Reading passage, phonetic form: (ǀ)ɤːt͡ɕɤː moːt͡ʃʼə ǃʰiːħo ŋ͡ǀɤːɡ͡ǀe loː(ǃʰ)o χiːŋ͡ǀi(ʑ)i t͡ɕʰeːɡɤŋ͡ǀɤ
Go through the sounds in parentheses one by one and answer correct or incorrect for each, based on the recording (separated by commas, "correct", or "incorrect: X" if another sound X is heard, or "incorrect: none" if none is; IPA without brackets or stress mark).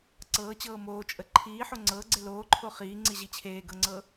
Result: correct, correct, correct